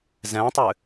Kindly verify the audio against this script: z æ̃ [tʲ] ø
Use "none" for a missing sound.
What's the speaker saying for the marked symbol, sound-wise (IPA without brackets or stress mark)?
tˤ